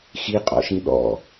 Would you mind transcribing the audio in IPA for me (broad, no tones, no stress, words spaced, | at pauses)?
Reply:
xiqʼɔ̰ʃĩ ɗɔ̰